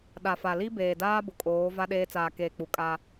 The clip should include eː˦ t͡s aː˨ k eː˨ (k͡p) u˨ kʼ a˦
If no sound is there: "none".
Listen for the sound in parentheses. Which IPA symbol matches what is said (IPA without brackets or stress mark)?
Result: k͡p